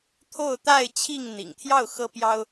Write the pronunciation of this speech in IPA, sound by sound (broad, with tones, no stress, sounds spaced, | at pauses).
t̪ʰ o˥˨ ʊ̯ t̪ a˥˨ ɪ̯ t͡ɕʰ i˥˨ ŋ n̪ ḭ˨˩ ŋ t̪ʰ j ɑ˥˨ ʊ̯ x ɤ˦ p j ɑ˦ ʊ̯